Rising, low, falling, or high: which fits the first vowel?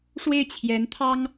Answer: falling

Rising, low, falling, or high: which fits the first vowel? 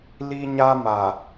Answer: high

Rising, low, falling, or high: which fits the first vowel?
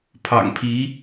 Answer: low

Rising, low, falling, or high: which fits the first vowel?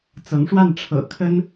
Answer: rising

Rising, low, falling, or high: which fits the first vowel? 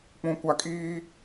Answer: low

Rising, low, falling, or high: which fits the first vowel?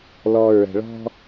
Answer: low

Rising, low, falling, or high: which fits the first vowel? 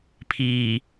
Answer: low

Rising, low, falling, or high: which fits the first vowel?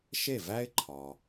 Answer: falling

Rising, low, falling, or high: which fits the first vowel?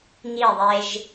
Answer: falling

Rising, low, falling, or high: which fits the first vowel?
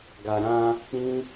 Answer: low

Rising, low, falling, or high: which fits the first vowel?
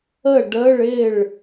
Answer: falling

